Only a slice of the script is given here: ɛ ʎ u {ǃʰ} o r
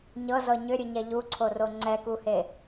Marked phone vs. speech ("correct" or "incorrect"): incorrect